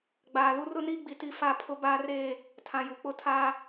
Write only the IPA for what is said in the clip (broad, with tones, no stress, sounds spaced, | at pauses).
ɡ͡b aː˨ l u˦ r ʊ˦ n iː˦ ɡ͡b i˨ t i˦˨ f a˦˨ pʰ ʊ˦ b aː˦ r eː˦˨ | tʰ ã˨ j u˨ k͡p ʊ˦ tʰ aː˦